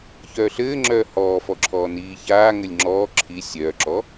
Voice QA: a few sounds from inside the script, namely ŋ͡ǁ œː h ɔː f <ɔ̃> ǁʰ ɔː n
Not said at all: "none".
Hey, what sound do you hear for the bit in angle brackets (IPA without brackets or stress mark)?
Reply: ɔ